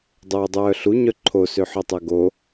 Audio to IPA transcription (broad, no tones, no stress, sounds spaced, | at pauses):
dˤ oː dˤ œː ɬ u ɲ œ ǃʰ o s ø ħ œ tˤ œ ɡ o